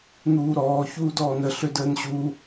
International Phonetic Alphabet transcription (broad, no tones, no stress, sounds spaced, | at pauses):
n̪ uː ɾ ɔː ç uː d ɔː n ə ɬ ø d əː n ɕ u